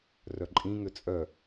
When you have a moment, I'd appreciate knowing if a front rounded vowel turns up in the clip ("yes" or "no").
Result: yes